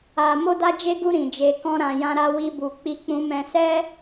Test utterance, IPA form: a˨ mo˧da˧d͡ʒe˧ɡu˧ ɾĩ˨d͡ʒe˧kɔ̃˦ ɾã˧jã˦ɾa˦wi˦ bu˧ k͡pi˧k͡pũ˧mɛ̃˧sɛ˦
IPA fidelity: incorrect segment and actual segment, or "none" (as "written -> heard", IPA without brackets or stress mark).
none